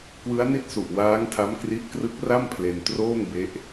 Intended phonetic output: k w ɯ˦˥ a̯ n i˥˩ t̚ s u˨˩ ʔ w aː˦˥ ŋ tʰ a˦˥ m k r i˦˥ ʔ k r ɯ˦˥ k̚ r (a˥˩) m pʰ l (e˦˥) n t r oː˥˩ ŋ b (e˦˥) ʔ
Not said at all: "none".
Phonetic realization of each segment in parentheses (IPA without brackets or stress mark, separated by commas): a˥˩, e˧, e˦˥